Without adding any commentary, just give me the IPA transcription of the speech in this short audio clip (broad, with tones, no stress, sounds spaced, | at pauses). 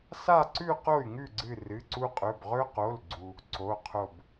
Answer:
s a˥˧ ǀ ʉ˥˧ q o˥˩ y̯ ŋ ʉ˥˩ ɡ͡ǀ ɨ˧˩ r ɨ˩˧˩ ǀ u˧ qʼ ɵ˩˧˩ b ʁ ɵ˧ q o˩˧˩ l ɡ͡ǀ u˧ | ǀ o˩˧˩ qʰ o˧˩ b